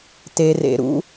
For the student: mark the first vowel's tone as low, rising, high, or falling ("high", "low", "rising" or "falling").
low